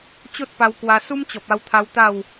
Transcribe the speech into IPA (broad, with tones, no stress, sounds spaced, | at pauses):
t͡ɕ o˦ t̚ p a˧ w k w a˧ s u˦ m t͡ɕ ɔ˨ p̚ a˧ w t̪ʰ a˧ w t̪ a˥˧ w